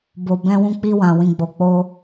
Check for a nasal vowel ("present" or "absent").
present